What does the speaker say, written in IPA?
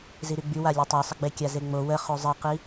z i ɾ y ɡ͡b y w a lʲ e tˤ o sˤ ə ɡ͡b e kʲ a z e ŋ͡m o w ə χ o zˤ i q i

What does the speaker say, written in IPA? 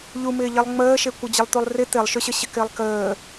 ʎ u m ɪː ʎ i lˠ ŋ͡m əː ʃ e kʷ ə d͡ʑ ə lˠ t̪ u lˠ r ɪ t̪ ɪ lˠ ʃ ʏ ɕ ə ɕ ɪ k ɪː lˠ k əː

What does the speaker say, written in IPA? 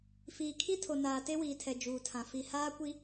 f iː˨ kʰ i˦ tʰ o˨ n aː˨ t e˦ w iː˨ tʰ ɛ˨ d͡ʒ uː˨ tʰ ã˨ f i˨ h aː˦ kʷ i˦

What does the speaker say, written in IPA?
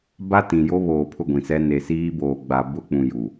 b a˦ t ĩ˨ j o˦ β oː˨ pʰ ʊ˦˨ ɡʷ ĩ˨ s ɛ˦ n e˨ s iː˦ b oː˨ ɡ͡b a˨ b ʊ˦ k͡p ũ˨ j u˨

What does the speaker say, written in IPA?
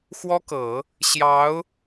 x w ɔ˥ k ɤ˨˩˦ | ɕ j ɑ˧˥ ʊ̯

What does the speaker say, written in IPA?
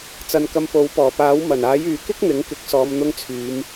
t͡s ɐ˨˧ n k ɐ˧ m p o˨˥ w p ɔː˨˩ p aː˨˥ w m ɐ˨˩ n aː˨˥ j yː˨ k ɪ˥ k̚ n̪ ɪ˨˥ ŋ k ɪ˨˥ k̚ s ɔː˨˧ m n̪ ʊ˧ ŋ t͡sʰ yː˨˧ m

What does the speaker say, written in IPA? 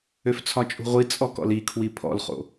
ø f t͡sʰ ɒ t͡ʃʼ ṳ ʁʷ i t͡sʼ ɔ k ɔ̰ l i kʰ w i pʰ ɔ̰ l χ o̰

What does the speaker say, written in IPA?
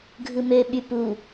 ɡʱ ɯ m ø ɓ y p u

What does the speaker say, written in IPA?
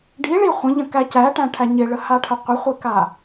ɖ i ɭ i χʷ ə̃ ʎ ə̃ k æ c æ ʈ æ̃ ʈʰ æ ɲ ɪ ɭ ə h a ʈʰ ə qʷ ə χʷ ɪ k a

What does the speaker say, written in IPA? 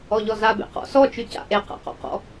ɔ ʎ ɔ z a b ḛ q ɔ̰ s ɔ t͡ʃ ʉ c a̰ ʔ e q a̰ q ɔ̰ q ɔ̰

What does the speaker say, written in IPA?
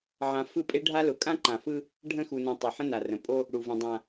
ʕ ã˨ f ɯ˦˨ pʼ e˦ ɖʱ a˦ l ʊ˨ kʼ ã˦ ǃ ã˨ f ɯ˦ | ɖʱ ə̃˦˨ x u˨ n ũ˨ tˤ e˨ ħ ə̃˦ n a˨ r ə̃˨ pʼ o˦ | ɽ u˨ v ə̃˨ dˤ ã˨

